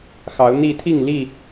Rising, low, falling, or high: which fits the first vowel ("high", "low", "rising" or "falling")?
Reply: rising